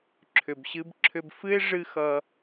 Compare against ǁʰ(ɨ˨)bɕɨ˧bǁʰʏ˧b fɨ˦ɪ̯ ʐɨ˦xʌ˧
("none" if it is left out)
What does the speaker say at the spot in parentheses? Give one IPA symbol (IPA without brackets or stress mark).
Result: ʏ˨